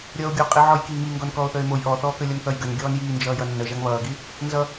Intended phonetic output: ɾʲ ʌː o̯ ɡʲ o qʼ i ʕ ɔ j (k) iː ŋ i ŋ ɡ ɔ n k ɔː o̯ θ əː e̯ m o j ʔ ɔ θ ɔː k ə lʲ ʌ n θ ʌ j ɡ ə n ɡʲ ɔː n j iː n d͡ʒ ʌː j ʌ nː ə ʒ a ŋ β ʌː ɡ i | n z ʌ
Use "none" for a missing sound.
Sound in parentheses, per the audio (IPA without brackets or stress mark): k